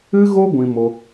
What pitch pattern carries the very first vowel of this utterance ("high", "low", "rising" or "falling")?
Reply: high